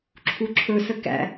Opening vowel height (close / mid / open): close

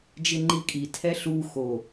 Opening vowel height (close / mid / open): close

